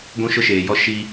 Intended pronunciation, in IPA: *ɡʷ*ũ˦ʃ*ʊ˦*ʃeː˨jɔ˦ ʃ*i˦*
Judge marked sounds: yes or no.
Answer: yes, yes, yes

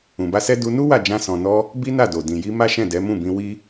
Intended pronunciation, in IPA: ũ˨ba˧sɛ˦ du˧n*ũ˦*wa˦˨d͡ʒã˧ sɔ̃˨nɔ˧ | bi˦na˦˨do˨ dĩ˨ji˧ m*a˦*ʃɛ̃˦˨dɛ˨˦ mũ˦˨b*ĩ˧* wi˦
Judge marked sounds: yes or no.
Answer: no, yes, yes

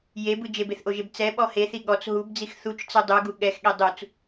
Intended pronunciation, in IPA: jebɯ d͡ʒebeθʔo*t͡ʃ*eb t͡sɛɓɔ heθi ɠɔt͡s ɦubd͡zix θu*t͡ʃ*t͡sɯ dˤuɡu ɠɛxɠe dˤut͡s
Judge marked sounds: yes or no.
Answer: no, yes

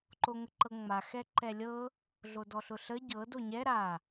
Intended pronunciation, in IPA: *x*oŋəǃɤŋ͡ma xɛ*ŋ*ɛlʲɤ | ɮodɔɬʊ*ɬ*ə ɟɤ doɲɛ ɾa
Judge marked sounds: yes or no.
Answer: no, no, yes

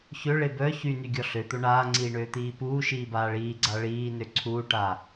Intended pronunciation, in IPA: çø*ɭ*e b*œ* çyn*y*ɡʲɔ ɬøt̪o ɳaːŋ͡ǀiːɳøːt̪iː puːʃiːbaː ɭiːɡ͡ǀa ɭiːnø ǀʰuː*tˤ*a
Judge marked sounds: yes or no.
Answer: yes, yes, yes, no

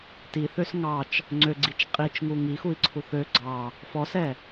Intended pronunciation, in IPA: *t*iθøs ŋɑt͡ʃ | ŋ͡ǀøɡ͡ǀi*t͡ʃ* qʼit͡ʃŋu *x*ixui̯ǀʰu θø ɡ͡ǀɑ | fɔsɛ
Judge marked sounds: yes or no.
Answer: yes, yes, no

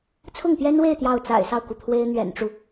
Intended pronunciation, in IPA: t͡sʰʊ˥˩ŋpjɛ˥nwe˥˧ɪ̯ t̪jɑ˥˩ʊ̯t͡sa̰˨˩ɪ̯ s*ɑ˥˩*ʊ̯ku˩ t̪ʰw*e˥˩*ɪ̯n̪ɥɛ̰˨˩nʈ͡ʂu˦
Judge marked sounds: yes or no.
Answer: yes, no

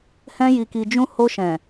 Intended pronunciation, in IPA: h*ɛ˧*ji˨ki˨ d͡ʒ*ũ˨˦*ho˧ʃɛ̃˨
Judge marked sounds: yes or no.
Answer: no, no

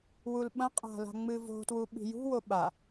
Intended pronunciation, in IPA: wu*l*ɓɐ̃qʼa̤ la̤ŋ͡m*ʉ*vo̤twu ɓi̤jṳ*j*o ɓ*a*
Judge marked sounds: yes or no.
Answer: yes, no, no, yes

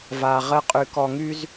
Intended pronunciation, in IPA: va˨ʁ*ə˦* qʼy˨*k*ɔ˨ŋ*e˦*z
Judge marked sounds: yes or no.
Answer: yes, yes, no

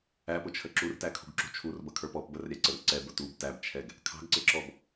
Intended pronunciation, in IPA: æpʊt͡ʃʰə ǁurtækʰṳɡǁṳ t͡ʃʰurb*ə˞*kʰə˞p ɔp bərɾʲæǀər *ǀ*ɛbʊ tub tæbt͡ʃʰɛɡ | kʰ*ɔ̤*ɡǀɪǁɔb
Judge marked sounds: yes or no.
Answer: no, yes, no

